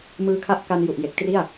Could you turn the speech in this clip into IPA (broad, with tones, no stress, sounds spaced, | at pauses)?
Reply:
m ɯː˦˥ kʰ a˥˩ ʔ k a˧ n j u˨˩ ʔ j e˨˩ k̚ t r i˥˩ a̯